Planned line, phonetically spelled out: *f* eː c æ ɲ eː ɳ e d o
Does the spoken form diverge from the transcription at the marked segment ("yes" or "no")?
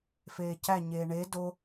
no